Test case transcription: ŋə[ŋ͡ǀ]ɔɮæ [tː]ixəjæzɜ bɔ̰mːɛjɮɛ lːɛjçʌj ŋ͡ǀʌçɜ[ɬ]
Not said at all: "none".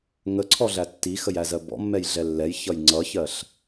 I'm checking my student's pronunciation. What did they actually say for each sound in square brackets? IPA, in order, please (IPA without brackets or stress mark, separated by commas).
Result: ǀʰ, tː, ɬ